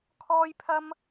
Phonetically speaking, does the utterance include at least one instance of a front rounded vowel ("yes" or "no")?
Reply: no